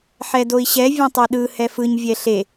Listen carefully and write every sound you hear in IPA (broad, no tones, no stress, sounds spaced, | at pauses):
ħ ɛ d o i̯ ɕ ɛ vʲ ẽ tˤ e ɗ ɯ h ɛ f ɯ ɲ vʲ ɛ ɬ e